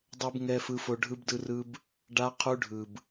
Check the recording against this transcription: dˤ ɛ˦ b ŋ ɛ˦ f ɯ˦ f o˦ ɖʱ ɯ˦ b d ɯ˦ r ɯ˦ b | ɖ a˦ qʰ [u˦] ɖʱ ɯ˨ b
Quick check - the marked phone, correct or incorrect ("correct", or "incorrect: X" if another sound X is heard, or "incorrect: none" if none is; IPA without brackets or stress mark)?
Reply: correct